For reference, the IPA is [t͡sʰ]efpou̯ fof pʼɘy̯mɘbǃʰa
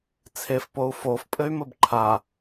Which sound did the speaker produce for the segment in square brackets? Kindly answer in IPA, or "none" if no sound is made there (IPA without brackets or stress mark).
t͡sʰ